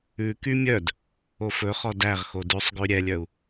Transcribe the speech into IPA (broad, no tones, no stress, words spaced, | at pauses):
ʉky mʲœd | ofɵχɔ dæʁxo dʉsˤ ɡʉɾʲɛlʲœu̯